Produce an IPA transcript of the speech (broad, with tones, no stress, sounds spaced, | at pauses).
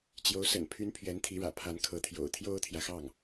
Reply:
t͡ɕ j o˧˥ ʊ̯ s ə̰˨˩ n pʰ y˧˥ n pʰ ɥ ɛ˧˥ n t̪ʰ i˧˥ ɻ ä̰˨˩ pʰ a˧˥ n kʰ ɤ˧˥ t̪ʰ j o̰˨˩ ʊ̯ t̪ʰ j o˥ ʊ̯ t̪ʰ j ä˨ x ɑ˥˩ ŋ